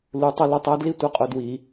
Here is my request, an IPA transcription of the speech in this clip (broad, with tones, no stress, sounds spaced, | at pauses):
l u˧˥ tˤ ʌ˥ l ʌ˥ tˤ æ˧˥ d l i˥ tʷ ʌ˧˥ qʼ ʊ˦˨ d w i˧˩˧